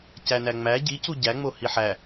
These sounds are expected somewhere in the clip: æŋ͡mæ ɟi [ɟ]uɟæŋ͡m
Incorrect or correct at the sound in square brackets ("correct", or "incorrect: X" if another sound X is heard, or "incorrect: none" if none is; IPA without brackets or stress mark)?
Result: incorrect: c